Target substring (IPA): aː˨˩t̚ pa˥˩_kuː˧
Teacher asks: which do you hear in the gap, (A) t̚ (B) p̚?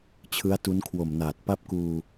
B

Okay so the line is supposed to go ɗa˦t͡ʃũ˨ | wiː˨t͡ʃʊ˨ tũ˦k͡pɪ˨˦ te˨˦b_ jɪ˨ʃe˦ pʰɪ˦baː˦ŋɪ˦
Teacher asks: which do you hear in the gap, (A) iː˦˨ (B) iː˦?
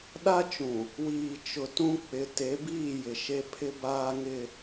A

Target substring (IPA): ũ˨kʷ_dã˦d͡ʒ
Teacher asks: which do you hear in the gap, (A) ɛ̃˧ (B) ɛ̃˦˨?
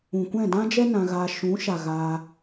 B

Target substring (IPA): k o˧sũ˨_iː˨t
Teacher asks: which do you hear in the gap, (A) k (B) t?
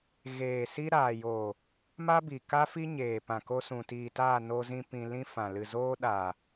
B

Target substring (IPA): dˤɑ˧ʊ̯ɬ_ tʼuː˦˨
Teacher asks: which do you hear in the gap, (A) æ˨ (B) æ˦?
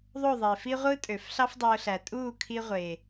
A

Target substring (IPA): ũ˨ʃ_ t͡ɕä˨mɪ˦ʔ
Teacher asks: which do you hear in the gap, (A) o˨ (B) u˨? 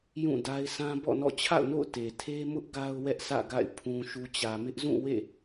B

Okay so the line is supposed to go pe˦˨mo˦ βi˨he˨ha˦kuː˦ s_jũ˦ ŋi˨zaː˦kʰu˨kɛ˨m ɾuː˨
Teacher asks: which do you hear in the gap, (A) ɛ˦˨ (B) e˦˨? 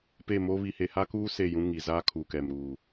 B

